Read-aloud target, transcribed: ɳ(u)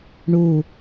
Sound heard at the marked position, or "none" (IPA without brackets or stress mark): u